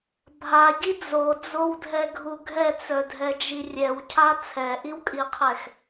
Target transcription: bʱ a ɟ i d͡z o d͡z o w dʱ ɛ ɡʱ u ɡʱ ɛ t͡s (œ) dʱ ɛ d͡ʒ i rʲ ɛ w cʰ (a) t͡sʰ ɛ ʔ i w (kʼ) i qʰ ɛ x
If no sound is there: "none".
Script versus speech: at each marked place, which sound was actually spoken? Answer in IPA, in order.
œ, a, kʼ

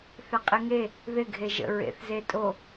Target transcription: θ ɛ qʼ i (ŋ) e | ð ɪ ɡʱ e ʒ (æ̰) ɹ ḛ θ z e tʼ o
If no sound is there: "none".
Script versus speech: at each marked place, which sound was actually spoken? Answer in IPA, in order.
ŋ, ə̰

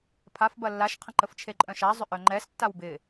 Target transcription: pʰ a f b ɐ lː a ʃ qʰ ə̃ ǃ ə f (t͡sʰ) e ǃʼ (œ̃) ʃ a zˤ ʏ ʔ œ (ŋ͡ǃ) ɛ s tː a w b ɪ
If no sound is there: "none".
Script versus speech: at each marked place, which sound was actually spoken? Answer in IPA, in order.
t͡ʃʰ, œ̃, ŋ͡ǃ

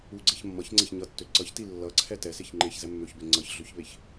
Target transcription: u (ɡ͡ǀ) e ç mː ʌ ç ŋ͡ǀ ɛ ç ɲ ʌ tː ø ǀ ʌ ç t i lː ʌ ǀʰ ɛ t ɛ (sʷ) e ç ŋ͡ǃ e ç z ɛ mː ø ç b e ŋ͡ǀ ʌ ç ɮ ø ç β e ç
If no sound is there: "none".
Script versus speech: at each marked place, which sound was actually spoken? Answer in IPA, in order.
ɡ͡ǀ, s

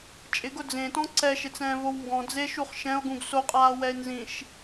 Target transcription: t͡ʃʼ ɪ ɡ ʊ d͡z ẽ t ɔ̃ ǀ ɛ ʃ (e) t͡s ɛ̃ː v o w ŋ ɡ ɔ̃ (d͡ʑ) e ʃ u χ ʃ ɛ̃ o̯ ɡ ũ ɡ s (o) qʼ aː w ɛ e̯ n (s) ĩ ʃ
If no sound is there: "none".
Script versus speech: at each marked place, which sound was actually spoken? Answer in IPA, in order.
e, d͡z, o, z

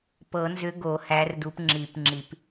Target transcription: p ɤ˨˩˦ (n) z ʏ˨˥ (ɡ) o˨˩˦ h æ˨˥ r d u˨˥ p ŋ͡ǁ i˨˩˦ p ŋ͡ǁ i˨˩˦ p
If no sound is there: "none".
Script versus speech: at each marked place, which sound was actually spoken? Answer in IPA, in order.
n, ɡ

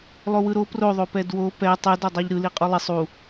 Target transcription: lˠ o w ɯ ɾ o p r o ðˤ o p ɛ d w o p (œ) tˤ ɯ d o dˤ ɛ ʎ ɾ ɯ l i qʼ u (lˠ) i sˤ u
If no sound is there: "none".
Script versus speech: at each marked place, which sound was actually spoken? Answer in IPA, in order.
ɛ, lˠ

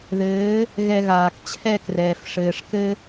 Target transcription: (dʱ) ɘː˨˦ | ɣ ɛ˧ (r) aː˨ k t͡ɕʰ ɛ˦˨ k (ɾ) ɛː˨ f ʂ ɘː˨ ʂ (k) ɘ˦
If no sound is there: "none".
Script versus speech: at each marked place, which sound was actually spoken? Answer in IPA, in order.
ð, ɣ, r, k

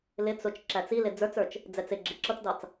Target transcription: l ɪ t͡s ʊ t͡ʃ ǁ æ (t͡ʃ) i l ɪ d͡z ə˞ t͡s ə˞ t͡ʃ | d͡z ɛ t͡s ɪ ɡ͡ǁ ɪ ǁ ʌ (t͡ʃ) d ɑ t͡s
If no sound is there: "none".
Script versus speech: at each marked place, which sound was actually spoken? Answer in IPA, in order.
t͡s, t͡s

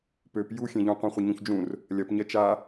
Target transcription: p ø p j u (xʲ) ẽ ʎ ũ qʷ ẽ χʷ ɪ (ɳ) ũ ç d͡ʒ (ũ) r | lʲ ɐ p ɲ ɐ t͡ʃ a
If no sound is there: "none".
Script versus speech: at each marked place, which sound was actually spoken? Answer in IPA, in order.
xʲ, ɲ, ũ

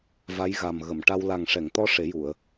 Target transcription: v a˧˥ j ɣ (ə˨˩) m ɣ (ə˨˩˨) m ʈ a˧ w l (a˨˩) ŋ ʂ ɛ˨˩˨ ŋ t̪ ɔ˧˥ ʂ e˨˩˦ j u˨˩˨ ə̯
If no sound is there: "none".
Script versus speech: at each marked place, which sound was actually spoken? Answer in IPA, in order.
a˨˩, ə˨˩˨, a˨˩

